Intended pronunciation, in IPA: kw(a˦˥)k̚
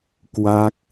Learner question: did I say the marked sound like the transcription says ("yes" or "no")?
yes